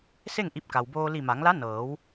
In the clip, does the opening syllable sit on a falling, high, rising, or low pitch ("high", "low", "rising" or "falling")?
falling